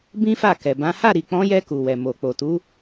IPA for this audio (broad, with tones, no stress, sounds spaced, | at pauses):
b ĩ˦ f a˦˨ k ɛ˨ b ã˨˦ h a˦˨ ɾ i˨ k͡p ɔ̃˨˦ j ɛ˧ k u˨ w ɛ˨ m o˨ k͡p o˨ t u˨˦